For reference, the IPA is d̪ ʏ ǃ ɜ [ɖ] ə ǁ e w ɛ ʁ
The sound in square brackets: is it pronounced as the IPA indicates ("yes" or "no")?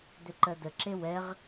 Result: no